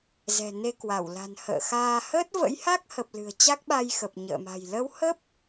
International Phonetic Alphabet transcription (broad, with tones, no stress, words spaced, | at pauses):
zɛ̤˨˩ne˧kwa˧˩wla̤˨˩n hə̰ː˧˨xaː˧ həː˦˥t̚və̰˧˥jha˦˥k̚hə˨˩p̚ lɨ̤˨˩ə̯t͡ɕa˦˥k̚ɓa˧jxə˨˩p̚ ɲə̰ː˧˨ma̤˨˩j lə˨˦whə˦˥p̚